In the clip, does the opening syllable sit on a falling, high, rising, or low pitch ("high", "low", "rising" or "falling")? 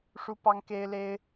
high